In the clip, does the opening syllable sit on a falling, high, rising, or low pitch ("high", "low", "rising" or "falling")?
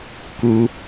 high